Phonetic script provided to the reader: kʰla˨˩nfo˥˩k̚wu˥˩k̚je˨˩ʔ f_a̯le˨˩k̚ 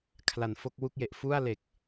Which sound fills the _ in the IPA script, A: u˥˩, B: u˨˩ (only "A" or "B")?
A